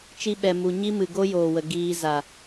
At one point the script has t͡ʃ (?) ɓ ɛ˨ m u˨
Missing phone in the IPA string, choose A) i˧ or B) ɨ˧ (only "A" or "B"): A